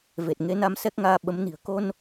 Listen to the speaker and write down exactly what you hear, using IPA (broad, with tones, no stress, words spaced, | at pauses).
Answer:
ve˨˩t̚ŋe˨˦na˧m sɛ˦˥k̚ŋaː˧ɓə˨˦mni̤˨˩ə̯ ko˧n